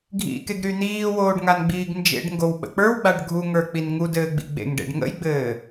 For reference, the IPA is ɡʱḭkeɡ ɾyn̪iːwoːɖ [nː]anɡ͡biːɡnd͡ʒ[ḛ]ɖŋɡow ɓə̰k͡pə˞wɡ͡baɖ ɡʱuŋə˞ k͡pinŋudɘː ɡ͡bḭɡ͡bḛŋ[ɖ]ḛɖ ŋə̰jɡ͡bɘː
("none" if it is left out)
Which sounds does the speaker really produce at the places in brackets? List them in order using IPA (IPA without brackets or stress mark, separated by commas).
ŋ, ḛ, ɖ